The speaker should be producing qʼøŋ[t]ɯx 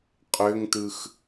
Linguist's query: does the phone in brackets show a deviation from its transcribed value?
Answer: no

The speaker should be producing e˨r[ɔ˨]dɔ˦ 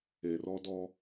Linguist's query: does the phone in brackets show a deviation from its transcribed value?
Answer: yes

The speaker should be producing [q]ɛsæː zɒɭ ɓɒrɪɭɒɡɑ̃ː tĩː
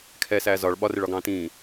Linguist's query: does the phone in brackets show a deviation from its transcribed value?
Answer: yes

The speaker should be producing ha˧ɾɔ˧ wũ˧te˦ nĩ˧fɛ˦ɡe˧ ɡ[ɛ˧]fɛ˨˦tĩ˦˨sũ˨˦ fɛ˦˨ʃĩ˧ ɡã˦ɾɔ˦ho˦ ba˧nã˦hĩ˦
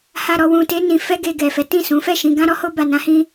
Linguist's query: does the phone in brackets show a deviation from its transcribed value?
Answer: yes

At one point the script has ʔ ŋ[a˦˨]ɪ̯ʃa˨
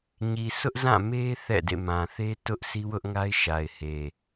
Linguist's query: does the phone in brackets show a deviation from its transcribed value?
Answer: yes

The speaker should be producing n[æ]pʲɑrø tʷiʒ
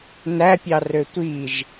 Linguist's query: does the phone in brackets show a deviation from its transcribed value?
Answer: no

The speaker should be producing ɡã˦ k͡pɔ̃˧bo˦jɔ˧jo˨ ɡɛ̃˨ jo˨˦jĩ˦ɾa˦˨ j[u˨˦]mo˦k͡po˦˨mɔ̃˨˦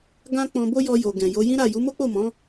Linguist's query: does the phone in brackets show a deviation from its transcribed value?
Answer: no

